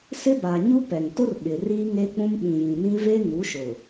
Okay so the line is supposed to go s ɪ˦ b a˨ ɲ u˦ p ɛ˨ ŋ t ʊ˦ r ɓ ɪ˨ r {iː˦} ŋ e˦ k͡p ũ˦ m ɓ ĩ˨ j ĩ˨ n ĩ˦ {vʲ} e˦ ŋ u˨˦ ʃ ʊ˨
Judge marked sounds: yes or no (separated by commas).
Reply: yes, no